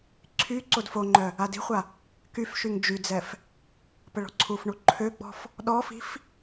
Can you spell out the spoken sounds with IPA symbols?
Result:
ǀʰ y ǀ o d f o ŋ͡ǃ œ | a d i̤ χʷ a | k y f ʃ y ŋ d͡ʒ y d͡z ɛ f | p ə ɭ ɔ̤ ǀʰ u f ɳ u ǃʰ ø ɡ͡b ɔ̤ f | ɗ ɔ f i̤ f

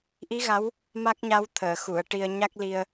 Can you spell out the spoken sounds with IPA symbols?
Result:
ʔ i˧˥ ɣ a˧˥ w | m a˦˥ k̚ ɲ a˧˥ w t̪ʰ əː˨˩˨ x u˨˩˨ ə̯ ʈ i˧ ə̯ ɲ a˦˥ k̚ l i˧ ə̯

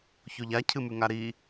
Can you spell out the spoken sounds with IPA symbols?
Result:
ç o ʎ a cʰ ɨ m ʉ ŋ a ɾ i

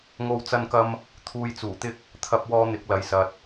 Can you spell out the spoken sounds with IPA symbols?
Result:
ŋ o˧ w t͡s ɐ˧ n k ɐ˧ m | t̪ʰ uː˧ j t͡s uː˨˩ t̪ ɪ˥ k̚ | t̪ʰ ɐ˥ p̚ w ɔː˥ n̪ ɪ˨˥ k̚ l ɐ˨˥ j s ɐ˨ t̚

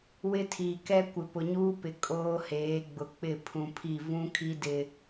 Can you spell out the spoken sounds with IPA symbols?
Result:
w ɪ˦ tʰ iː˨ k ɛ˦ kʷ ɪ˨ p ʊ˨ ɲ uː˦ p ɪ˨ kʼ oː˦ h eː˨˦ ɡ͡b ʊ˨ k͡p ɪ˦˨ pʰ ũ˨ pʰ i˦˨ v ũ˦ kʰ i˦ d ɪ˦

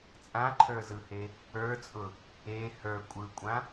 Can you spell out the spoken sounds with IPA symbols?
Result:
t͡sʼ ã ǃʰ ə˞ z ɯ h e | ə˞ t͡sʼ ʊ | e h ə˞ kʷʼ ɯ kʷʼ ã

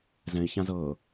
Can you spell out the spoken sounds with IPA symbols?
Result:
z ɛ̃ i̯ ç ã z ɤː

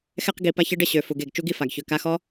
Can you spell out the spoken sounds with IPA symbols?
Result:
x ɛ˧ q ɡ i˨ p a˧ ç ə˧ ɖ ə˦ ɕ ø˨ f u˨ ɡ e˨ ɡ t͡ʃ u˦ ɡ i˦ f a˨ ɡ ç ø˨ k a˧ x ɔ˦

